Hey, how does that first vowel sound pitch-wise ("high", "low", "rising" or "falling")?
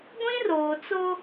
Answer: high